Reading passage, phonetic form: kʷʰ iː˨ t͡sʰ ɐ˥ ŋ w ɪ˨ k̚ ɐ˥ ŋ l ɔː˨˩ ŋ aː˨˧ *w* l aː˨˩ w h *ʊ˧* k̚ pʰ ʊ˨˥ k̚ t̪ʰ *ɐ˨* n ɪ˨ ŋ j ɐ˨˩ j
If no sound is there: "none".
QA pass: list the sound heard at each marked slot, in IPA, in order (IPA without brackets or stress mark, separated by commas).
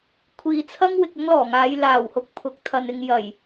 j, ʊ˧, ɐ˨